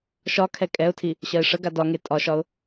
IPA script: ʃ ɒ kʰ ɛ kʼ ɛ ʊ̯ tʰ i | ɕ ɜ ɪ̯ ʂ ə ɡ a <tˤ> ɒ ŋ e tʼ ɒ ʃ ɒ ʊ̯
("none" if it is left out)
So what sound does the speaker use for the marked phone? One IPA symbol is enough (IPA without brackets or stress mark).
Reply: d